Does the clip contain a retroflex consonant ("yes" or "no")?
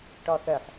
yes